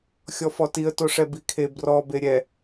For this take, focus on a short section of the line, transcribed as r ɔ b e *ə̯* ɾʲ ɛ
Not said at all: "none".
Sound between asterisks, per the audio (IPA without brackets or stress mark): none